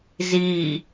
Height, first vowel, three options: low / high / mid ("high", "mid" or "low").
high